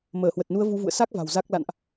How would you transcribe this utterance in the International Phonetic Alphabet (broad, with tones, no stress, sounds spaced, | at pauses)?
m əː˧˩ h w ə˨˩ t̚ n u˨˦ ə̯ v u˨˦ v ṵ˧˨ ə̯ s a˦˥ k̚ v a̤˨˩ w z a˦˥ k̚ l a̰˧˨ n ʔ